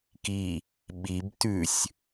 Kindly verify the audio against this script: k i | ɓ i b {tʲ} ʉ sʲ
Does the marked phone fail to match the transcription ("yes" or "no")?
yes